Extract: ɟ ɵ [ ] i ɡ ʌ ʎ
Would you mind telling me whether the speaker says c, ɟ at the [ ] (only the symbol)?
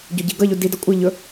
ɟ